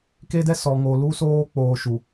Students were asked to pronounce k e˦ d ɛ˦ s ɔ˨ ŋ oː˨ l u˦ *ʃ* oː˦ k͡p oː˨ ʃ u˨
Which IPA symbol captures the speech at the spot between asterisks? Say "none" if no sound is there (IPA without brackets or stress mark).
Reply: s